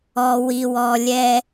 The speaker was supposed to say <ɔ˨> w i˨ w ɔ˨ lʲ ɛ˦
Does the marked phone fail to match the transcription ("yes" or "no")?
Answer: no